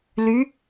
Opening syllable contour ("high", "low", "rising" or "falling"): rising